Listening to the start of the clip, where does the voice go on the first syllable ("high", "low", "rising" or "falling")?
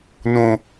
high